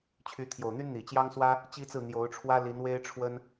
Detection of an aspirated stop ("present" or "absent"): present